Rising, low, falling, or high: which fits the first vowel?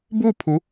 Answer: falling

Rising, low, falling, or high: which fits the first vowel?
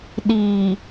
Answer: low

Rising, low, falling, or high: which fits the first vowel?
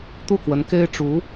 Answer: falling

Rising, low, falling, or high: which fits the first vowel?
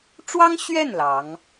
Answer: high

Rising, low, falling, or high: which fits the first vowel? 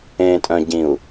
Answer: low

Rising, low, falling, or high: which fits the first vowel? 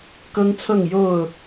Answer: high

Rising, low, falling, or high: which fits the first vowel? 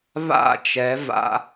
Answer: falling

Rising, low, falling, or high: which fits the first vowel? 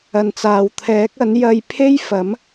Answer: low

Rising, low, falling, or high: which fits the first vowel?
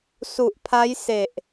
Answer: low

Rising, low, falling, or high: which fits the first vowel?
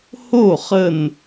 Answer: falling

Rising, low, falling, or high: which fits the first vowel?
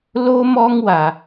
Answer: high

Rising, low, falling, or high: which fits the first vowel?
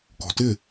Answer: high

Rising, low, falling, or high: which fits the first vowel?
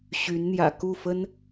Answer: rising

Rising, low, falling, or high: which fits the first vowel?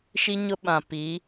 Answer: high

